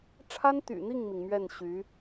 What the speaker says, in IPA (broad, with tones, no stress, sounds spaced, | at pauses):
ʈ͡ʂʰ a˥ n t̪ y̰˨˩ n̪ i˥˩ ŋ m i˩ ŋ m ɥ ɛ˥˩ n ɕ y˧˥